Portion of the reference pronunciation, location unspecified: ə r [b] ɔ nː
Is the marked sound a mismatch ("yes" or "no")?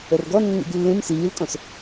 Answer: yes